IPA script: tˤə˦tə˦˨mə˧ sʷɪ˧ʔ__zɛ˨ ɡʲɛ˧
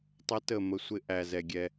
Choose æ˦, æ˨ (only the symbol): æ˨